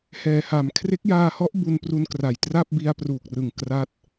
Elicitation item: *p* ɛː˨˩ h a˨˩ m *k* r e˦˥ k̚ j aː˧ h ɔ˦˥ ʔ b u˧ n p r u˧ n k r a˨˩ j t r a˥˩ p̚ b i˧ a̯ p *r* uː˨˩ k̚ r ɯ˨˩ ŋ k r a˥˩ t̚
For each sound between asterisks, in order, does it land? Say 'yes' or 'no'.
no, no, yes

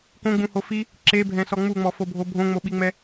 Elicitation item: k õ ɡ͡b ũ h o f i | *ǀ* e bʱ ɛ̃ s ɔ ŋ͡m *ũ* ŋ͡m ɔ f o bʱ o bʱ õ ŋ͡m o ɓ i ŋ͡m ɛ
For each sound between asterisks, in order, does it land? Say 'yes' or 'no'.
no, no

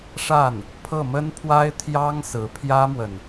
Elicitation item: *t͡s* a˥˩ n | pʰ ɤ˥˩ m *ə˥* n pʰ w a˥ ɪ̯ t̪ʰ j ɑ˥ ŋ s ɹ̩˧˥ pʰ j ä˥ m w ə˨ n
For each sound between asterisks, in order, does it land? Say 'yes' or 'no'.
no, yes

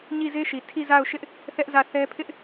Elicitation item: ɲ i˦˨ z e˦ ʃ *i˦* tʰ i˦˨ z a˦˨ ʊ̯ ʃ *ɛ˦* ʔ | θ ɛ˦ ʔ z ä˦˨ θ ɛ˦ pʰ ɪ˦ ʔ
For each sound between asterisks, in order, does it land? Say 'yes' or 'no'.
no, no

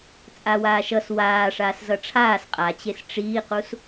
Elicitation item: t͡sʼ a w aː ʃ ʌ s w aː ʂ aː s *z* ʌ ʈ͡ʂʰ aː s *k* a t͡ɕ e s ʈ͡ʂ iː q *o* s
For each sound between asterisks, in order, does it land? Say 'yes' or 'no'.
yes, no, no

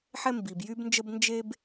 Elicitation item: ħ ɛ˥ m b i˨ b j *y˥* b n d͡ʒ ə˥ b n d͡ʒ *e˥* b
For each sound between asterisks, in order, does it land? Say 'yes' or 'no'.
yes, yes

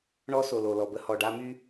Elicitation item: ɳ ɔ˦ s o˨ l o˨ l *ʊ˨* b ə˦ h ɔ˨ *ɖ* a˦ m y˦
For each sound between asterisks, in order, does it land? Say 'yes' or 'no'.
no, yes

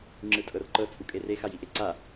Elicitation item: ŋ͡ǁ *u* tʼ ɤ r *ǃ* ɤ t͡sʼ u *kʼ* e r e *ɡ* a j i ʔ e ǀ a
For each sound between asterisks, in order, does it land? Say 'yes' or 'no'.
no, yes, yes, no

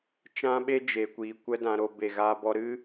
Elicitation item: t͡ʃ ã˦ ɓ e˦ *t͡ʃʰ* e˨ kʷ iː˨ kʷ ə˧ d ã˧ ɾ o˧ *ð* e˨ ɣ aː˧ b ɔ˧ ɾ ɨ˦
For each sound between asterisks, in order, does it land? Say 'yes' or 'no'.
no, no

